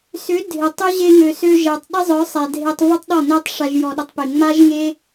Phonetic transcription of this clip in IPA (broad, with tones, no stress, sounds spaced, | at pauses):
s ʏ˨˦ dʱ ɪ˨ tˤ ʏ˦ ʑ e˧ ŋ ø˨ s ø˧ ʒ ɛ˨ tˤ ɗ ɪ˦ zˤ œ˨˦ sˤ ɛ˨ dʱ e˧ tˤ v ə˦ tˤ ɗ ɔ˦˨ n e˦ tˤ ʂ a˦ ʒ j ɔ˧ ɗ ə˦ tˤ p e˧ ŋ͡m a˦ ʒ ŋ e˦